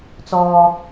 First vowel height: mid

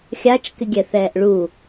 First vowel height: low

